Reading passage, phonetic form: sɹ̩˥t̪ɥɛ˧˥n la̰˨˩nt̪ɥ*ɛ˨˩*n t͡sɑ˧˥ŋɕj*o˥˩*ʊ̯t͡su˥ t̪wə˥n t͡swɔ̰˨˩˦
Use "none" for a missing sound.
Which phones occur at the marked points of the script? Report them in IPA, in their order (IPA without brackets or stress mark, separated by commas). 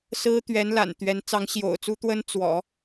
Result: ɛ˧˥, o̰˨˩